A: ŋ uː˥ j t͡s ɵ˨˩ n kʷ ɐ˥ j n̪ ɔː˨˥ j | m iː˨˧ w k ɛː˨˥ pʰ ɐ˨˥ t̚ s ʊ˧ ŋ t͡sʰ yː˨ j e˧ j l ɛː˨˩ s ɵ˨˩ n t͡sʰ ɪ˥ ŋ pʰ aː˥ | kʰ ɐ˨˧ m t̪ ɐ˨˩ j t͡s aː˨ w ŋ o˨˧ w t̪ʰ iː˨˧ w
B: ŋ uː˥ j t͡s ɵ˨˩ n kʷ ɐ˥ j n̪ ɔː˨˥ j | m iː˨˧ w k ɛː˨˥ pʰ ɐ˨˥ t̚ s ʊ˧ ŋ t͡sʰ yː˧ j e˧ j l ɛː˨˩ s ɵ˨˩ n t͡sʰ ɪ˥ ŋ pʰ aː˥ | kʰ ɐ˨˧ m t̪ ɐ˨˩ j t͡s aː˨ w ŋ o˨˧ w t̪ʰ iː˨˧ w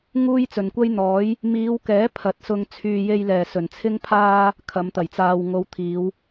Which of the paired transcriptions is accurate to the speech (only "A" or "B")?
A